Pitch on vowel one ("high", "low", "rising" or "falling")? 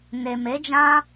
low